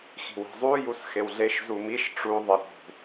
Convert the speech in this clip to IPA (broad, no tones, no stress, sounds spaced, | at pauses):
x i̤ w i̤ zˤ u j u s x e w ɮ e ʃ z u m i ʃ ʈ͡ʂ u ðˤ ɪ ɾ ṳ